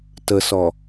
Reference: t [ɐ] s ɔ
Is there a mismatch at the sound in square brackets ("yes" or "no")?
yes